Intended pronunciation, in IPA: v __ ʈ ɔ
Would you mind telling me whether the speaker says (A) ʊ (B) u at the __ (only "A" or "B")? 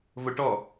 A